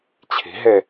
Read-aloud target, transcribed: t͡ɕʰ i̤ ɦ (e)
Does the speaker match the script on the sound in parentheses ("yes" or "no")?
yes